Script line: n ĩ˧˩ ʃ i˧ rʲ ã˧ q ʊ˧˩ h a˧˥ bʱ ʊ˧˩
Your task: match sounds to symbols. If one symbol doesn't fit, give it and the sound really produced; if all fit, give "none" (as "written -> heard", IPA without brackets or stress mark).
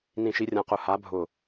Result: ã˧ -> ã˧˩